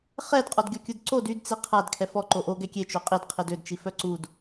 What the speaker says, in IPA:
χ ɛ d qʼ ɔ d ɡʲ ɔ kʲ u d ǀ o d y d t͡s i qʰ a d kʰ ɛ f ɔ ǃ o ʔ o ɡ ɛ kʲ e t͡ʃ o qʼ i d qʰ i d ø d t͡ʃ i f œ ǀ u d

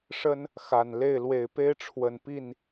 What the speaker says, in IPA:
ʂ ə˦ n | x a˨˩ n l e˥˨ ɪ̯ l w e˨˩ ɪ̯ p e˦ ɪ̯ ʈ͡ʂʰ w ə˨˩ n p i˥˨ n

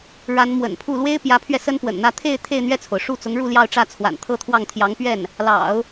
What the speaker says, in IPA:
ɻ a˧˥ n m w ə̰˨˩ n pʰ u˥˩ l w e˥ ɪ̯ p j ä˧˥ pʰ ɥ ɛ˧ s ə˥ n p w ə̰˨˩ n n̪ ä˥˧ t̪ʰ e˥˧ ɪ̯ t̪ʰ e˥˧ ɪ̯ n̪ ɥ ɛ˥˩ t͡sʰ o˩ ʊ̯ ʂ u˥˩ t͡s ʊ˧˥ ŋ ɻ u˥˧ l j ɑ˥˧ ʊ̯ ʈ͡ʂ ä˥˩ t͡sʰ w a̰˨˩ n t̪ʰ ɤ˥˧ t̪ʰ w ɑ˥˩ ŋ t̪ʰ j ɑ˧˥ ŋ p ɥ ɛ˥˩ n | l ɑ̰˨˩˦ ʊ̯

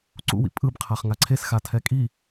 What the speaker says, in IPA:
ǀ ṵ w ḭ pʼ ɯ b qʰ a χ ŋ a ǀʰ e s x a tʰ ɛ kʼ i

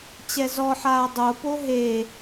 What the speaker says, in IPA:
t͡ɕ ɛ z ɔ ħ aː dˤ o p o ɦ e

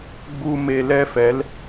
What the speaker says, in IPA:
ɡ͡b u˧ m e˧ l ɛ˦ f ɛ˨˦ l

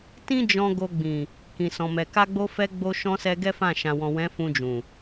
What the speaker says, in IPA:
t ĩ˦ d͡ʒ ɔ̃˧ ɡ o˧ ɡ͡b ĩ˨ | k ĩ˨ s ɔ̃˨ m ɛ˨ k a˧ ɡ͡b o˧ f ɛ˧ ɡ͡b o˧ ʃ ɔ̃˧ s ɛ˧ ɡ ɛ˦ f ã˦˨ ʃ ã˨ w ɔ̃˨ w ɛ̃˨˦ f ũ˧ d͡ʒ ũ˨

